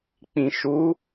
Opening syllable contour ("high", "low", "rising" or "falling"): low